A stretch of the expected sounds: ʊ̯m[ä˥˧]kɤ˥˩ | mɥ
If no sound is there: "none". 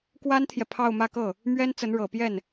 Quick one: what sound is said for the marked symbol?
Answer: ä˥˧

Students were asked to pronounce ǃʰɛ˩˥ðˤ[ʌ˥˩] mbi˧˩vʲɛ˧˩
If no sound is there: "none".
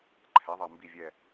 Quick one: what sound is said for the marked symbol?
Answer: ʌ˧˩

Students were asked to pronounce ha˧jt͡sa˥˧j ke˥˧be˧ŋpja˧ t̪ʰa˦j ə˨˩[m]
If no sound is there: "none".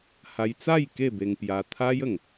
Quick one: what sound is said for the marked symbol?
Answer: ŋ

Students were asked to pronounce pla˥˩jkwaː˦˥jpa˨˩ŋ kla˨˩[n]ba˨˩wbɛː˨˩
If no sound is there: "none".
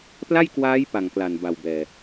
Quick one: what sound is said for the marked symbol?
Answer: n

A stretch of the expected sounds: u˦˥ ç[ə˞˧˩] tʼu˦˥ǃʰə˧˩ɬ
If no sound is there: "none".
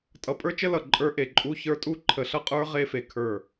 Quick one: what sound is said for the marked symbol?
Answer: ə˞˦˥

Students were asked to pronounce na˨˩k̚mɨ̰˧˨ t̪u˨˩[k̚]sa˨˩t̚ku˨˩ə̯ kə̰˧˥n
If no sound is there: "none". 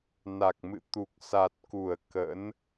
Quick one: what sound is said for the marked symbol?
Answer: k̚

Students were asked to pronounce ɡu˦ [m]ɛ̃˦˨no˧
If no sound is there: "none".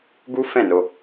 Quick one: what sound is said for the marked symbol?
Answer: f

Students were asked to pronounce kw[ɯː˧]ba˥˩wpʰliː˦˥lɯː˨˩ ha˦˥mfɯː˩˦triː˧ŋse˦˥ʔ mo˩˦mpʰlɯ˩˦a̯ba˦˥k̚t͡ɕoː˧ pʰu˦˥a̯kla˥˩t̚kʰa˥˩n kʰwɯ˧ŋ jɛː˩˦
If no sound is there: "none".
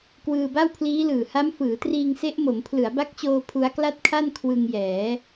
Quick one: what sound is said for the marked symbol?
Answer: ɯː˧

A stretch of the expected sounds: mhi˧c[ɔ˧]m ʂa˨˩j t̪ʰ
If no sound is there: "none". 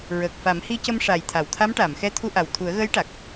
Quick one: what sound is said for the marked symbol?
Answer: ə˧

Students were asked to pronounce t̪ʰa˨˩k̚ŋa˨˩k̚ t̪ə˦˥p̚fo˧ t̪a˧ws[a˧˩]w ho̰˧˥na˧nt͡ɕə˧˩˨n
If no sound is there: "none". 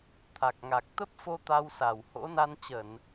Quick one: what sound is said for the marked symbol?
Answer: a˧˩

